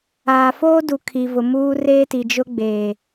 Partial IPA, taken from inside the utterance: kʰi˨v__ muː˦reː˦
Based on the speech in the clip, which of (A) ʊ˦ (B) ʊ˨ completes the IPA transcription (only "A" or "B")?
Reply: B